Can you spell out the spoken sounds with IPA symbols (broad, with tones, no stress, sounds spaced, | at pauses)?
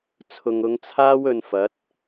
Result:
t͡sʰ ʊ˨ ŋ ʊ˨˧ ŋ t͡sʰ aː˥ w ɵ˧ n f ɐ˨˥ t̚